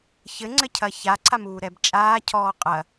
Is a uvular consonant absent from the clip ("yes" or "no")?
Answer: no